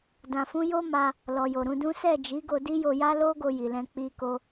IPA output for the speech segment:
d ã˨ f ũ˧ j o˦ m a˧ | l ɔ˨ j o˨ ɾ ũ˨˦ d ũ˦ s ɛ˦˨ d͡ʒ i˨˦ ɡ o˧ d i˦ j o˧ j a˦ l o˦ ɡ o˧ j i˨ l ɛ̃˧ k͡p i˧ k o˧

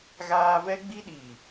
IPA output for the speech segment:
ɣ aː˦ v ɛ˦ ɡ͡b i˦ ɗ iː˨

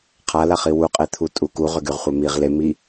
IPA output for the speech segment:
qʰ a l a χ i w u qʼ e t̪ʰ u tʼ u k u ʁ ʏ ɡ y ʁ χʷ ɛ m i ʁ l e m i

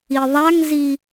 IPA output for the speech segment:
i ðˤ a ŋ z i

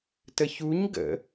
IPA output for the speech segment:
t ə ç u ɲ ɡ ə̰

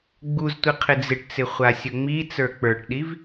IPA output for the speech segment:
ɡ͡b u z tʷ i qʰ ɪ d͡z ɪ ʈ t͡s ɪ χʷ a sʲ ɵ ŋ͡m i t͡s ə˞ k͡p ə˞ ʈ ɗ i v

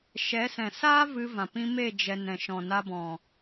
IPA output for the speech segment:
ʃ ɛ˨˦ s ɛ̃˨ s aː˦ v ɨ˧ v ã˨ p ĩ˧ m e˦˨ d͡ʒ ɛ˨ n ɛ̃˨ ʃ ɔ̃˨ n a˧ b ɔ̃˨

